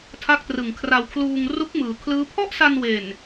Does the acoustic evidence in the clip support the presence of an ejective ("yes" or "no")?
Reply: no